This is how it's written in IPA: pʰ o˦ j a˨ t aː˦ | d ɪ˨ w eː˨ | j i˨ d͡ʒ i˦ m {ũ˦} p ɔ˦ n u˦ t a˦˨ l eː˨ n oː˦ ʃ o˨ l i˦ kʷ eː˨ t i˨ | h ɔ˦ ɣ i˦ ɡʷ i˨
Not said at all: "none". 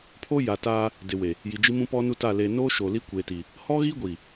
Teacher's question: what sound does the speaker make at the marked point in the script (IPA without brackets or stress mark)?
ũ˦